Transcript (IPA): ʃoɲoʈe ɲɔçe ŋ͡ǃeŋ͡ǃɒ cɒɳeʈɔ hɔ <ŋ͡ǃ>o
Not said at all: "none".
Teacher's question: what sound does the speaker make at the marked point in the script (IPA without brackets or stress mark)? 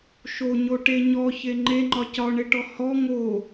ŋ